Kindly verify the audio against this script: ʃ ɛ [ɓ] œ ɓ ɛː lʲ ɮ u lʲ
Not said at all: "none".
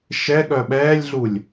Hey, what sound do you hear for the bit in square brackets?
ɠ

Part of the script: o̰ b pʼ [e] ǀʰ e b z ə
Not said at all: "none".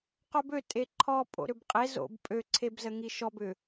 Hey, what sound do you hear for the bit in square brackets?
ø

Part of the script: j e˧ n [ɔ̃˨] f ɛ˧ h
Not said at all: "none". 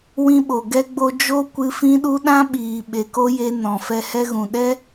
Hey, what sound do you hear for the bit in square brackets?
ɔ̃˨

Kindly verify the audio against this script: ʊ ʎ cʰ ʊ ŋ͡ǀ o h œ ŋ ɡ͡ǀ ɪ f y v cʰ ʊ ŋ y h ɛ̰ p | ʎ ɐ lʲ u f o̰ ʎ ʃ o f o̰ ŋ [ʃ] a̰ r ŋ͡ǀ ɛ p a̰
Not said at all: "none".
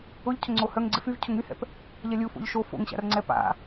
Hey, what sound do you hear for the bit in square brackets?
ɕ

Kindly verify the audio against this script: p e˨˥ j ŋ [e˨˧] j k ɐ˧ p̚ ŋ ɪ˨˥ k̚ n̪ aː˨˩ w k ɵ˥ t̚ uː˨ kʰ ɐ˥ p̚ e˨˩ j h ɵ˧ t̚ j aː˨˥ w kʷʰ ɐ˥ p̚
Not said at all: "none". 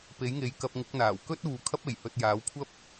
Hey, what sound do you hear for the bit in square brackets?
e˨˧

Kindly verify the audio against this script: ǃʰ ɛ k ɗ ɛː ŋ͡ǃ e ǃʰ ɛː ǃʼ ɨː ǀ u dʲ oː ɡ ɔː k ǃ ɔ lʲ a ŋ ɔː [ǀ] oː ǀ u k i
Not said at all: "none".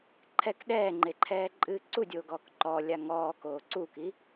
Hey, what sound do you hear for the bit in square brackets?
k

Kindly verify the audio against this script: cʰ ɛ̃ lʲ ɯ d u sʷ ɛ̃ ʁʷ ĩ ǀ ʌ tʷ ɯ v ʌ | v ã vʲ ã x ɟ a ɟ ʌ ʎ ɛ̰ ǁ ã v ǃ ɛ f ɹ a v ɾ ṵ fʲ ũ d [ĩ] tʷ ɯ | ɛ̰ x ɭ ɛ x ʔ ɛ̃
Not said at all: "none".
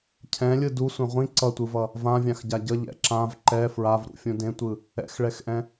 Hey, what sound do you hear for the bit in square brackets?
ẽ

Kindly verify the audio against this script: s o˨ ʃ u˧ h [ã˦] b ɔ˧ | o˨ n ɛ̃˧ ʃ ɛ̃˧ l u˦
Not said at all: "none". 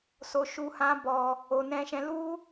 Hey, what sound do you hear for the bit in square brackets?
ã˦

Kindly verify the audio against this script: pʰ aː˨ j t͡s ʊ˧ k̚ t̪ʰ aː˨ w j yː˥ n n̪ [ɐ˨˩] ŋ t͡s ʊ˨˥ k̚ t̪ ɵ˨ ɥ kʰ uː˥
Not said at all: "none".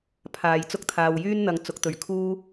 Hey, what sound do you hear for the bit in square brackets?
ɐ˧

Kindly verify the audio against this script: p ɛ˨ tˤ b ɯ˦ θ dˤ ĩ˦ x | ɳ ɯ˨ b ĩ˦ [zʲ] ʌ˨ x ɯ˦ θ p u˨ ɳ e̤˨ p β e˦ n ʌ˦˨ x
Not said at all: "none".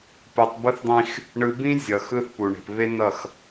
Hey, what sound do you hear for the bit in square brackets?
zʲ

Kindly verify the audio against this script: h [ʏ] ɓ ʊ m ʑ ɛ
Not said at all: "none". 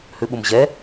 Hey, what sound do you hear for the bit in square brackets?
ʏ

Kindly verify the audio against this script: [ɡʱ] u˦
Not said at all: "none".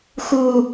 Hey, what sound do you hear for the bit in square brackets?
x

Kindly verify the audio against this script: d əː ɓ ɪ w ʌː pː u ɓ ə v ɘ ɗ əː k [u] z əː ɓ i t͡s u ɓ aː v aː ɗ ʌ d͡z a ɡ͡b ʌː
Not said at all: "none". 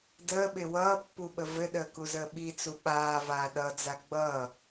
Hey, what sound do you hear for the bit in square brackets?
u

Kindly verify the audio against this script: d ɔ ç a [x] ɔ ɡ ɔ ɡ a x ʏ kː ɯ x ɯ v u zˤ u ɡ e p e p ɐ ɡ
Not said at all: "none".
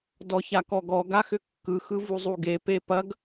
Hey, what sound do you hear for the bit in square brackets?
k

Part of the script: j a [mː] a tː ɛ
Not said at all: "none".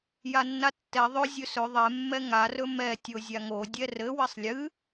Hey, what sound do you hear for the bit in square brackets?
nː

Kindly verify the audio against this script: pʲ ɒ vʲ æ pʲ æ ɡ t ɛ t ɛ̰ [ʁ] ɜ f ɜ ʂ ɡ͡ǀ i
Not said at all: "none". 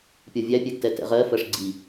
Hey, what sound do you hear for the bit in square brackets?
ʁ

